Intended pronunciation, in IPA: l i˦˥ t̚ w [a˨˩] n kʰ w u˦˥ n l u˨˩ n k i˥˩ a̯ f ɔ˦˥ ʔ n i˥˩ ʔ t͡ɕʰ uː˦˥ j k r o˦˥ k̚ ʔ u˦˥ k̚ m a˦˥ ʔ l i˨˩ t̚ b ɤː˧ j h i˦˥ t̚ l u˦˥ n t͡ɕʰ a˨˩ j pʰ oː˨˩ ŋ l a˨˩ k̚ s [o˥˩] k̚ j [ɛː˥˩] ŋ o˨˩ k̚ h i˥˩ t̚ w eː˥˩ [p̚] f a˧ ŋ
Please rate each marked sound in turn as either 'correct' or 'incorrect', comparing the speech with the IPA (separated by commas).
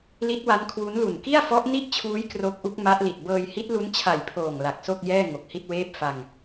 incorrect, correct, correct, correct